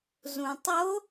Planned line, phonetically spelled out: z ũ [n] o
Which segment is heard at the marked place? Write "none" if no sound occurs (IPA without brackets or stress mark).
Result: tˤ